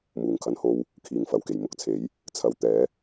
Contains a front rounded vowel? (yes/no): no